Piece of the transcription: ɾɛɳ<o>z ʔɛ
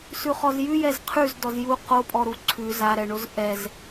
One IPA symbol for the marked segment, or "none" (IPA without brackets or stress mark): o